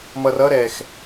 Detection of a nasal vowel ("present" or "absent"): absent